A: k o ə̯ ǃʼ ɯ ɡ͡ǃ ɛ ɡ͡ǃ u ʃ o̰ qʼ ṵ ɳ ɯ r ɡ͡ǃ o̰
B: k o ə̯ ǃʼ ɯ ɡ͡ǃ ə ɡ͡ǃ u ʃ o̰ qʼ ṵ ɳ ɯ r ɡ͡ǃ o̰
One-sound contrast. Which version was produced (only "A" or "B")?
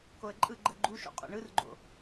B